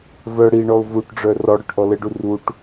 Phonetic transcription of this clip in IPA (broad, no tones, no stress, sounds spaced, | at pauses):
v œ ɽ i ɳ ɔ ʊ̯ v u ʈ ɖ͡ʐ œ r ɔ ɽ œ ʈ ʔ ɔ l ə ɖ u r u ʈ